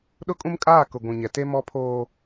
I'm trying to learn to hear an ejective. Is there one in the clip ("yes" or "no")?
yes